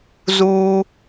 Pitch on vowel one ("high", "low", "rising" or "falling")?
high